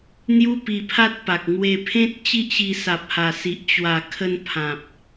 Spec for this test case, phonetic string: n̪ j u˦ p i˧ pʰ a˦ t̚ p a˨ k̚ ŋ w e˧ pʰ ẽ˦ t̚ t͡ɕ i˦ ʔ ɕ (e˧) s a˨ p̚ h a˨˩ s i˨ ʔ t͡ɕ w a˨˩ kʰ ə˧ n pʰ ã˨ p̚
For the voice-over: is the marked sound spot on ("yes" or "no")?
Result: no